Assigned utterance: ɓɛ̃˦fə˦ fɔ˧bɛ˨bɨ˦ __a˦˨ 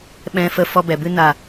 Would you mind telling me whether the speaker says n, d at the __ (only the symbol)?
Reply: n